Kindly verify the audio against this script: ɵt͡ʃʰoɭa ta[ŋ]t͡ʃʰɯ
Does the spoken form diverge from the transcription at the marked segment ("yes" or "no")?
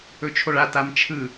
yes